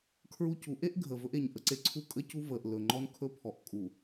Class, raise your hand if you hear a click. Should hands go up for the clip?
yes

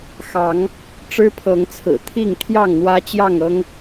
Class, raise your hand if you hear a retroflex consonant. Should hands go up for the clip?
yes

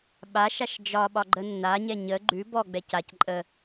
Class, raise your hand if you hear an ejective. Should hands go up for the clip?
yes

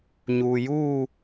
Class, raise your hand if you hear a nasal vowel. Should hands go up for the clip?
no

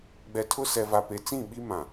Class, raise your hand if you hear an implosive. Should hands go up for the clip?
yes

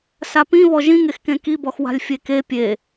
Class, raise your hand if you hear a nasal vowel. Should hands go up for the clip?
yes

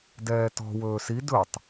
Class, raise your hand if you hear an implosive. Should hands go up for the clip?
no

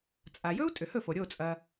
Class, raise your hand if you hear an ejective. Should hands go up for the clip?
yes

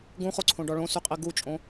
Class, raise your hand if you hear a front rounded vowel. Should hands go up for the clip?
yes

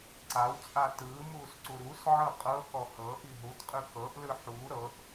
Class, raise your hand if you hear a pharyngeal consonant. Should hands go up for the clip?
yes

